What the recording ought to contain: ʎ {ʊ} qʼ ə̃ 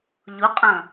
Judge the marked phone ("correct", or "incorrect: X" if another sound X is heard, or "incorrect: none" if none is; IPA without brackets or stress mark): correct